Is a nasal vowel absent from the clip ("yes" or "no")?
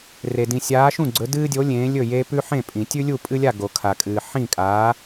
no